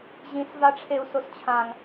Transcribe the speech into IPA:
ʑ ĩ s v a ʈ͡ʂʰ e u̯ s o s t͡ɕʰ ã ŋ

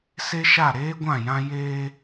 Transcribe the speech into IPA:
s e˦ ʃ a˦˨ ɾ eː˦ ɡʷ ã˦˨ j ã˦ j eː˦

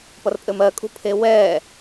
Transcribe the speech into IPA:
p ʌ r pʼ ɘ m ɜ kʼ ṳ pʰ e w ɛː

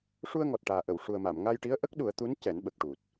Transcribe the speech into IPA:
ʂ u˧ ə̯ ŋ ɔ˨˩ t̚ ʈ aː˨˩ ʔ ə˨˩˨ w ʂ u˨˩ ə̯ m a˨˩˨ m ŋ a˧ j ʈ i˧˥ ə̯ ʔ ə˦˥ k̚ ɗ u˨˩˦ ə̯ t̪ u˧˥ n c ɛ˨˩˦ n ɓ ə˨˩ k̚ ʈ u˨˩ t̚

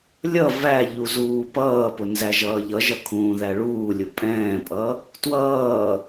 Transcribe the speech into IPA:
lʲ ʌ v æ ʎ u z uː p ʌː p ʊ n z æ ʒ ʌː ʎ ʌ ʒ ʌ kʰ ũː ð æ ɭ uː lʲ ʊ pʼ ɛ̃ː pʼ ʌ | t w ʌː

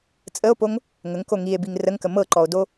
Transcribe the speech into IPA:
t͡sʼ ə o̯ p o ŋ | ŋ ə ŋ k o ŋ i e̯ b i ŋ r ə ŋ k ə m ɤ ǃ ɔ o̯ d o

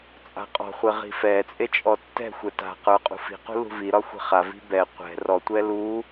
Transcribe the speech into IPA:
t͡sʼ a̤ qʼ ɔ̤ χʷ e ʁ i̤ f ɛ t͡sʼ e t͡ʃʼ ɔ tː ɛ̤ xʷ ɛ t a̤ q ə˞ qʼ ṳ f i̤ q ṳ l ṳ v i ɾ ɒ xʷ i̤ χ a v i̤ b ɛ qʷ ɛ̤ r ɔ tʷ ɛ l u

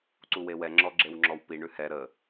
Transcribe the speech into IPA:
ǀ u w e w ɛ ŋ͡ǁ ɔ ɡ͡ǁ e w ŋ͡ǁ ɔ w p i ɳ ʉ h ɛ ɾ ə

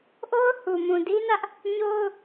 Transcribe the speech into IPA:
ʔ o˦ ʊ̯ h u˨ m ũ˨ d i˦ n ä˦ ʔ | ɲ o˦ ʊ̯

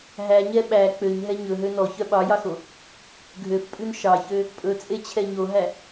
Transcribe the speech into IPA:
ɦ æ ɲ ɛ ɓ æ k͡p ø ɲ ɦ ɛ ɲ ɵ ɦ ø n ɔ ç œ ɓ ɑ j ɑ x o | ɡʱ ø f pʼ ʉ n ʃ ɑ ç ø | pʼ ɵ t͡sʼ e t͡ɕʰ ɛ ɲ o ɦ æ

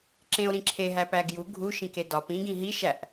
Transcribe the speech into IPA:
ǁ ẽ o̯ ɾ ĩ ǁʰ e ɦ æ p æ ɡ j u ɡʱ u ʃ ĩ k e d ɒ p ĩ ɡ ĩ ɦ i ʃ æ ʔ

